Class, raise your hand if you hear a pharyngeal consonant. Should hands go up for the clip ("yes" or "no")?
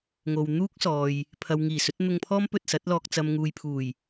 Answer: no